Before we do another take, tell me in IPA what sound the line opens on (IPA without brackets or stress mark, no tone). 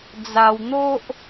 d͡z